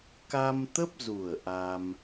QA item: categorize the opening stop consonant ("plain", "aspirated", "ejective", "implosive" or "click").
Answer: plain